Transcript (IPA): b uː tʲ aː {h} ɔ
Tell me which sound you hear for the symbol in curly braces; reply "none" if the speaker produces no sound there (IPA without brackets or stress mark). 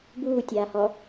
h